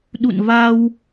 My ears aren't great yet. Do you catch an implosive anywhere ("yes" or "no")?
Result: yes